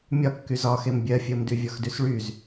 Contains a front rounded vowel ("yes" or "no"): yes